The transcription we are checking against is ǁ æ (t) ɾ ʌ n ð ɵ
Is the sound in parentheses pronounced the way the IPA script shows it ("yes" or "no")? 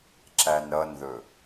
no